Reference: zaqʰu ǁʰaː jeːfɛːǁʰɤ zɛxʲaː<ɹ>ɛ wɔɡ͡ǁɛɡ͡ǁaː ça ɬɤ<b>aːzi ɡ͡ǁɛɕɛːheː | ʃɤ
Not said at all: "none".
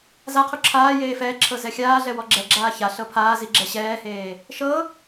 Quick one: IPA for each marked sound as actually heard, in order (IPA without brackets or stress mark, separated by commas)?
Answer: ɮ, pʰ